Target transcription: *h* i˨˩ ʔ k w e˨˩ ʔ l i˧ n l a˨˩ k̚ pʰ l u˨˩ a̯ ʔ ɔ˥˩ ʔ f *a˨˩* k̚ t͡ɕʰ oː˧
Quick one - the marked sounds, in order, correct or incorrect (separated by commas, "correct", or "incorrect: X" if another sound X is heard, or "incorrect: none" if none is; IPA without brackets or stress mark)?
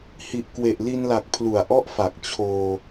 correct, correct